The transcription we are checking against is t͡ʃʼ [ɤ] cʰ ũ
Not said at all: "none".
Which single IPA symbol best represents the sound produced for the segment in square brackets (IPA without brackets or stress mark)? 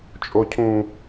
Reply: o